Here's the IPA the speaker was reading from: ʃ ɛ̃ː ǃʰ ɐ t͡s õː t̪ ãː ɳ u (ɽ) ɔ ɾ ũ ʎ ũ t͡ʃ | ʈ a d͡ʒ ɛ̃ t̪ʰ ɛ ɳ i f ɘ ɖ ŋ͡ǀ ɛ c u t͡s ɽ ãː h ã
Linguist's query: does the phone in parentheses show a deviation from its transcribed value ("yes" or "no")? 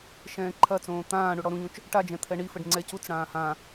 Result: no